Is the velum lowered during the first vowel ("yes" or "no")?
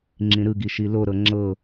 yes